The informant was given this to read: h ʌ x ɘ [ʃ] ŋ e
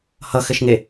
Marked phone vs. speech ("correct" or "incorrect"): correct